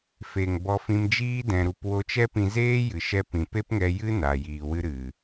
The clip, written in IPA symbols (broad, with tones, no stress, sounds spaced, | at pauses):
f e˨ ŋ b ɔ˧ f ĩ˧ m d͡ʒ iː˦ d ɛ̃˧ ɾ u˧ p w o˧ t͡ʃ ɛ˦ p ĩ˧ z eː˦ j ɨ˨ ʃ ɛ˧ p ĩ˨ p e˦ p ŋ ɛ˧ j ɨ˦ n a˧ j iː˧ w ɨ˦ ɾ ɨ˨